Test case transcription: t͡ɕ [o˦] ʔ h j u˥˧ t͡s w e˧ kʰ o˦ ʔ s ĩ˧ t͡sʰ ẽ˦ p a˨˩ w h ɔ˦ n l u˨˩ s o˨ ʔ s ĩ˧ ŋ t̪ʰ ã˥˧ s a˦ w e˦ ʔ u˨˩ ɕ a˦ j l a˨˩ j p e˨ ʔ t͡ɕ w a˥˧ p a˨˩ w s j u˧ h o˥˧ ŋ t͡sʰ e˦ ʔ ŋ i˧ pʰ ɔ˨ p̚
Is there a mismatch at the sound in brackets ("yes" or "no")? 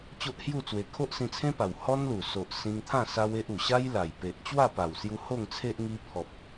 no